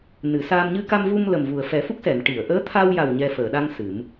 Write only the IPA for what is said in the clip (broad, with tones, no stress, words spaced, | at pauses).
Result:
nɨ˨˩˨saː˧m ɲɨ˧ka˧mvu˧m lə˨˩mvu˨˩ə̯fɛ˨˩˦ fu˦˥k̚sɛ˨˩˨n ʈi˨˩˨ə̯ʔəː˧˥ t̪ʰa˧wja˨˩w ɲɛ˧ fəː˨˩˨ɗa˧ŋ sɨ˨˩˦m